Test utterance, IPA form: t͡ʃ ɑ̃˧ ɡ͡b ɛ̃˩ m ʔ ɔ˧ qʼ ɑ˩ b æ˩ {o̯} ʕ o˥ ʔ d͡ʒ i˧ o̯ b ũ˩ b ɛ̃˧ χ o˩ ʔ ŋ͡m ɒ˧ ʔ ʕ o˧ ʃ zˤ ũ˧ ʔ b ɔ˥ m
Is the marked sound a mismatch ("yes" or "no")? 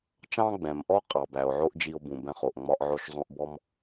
no